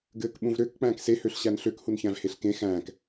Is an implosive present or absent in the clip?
present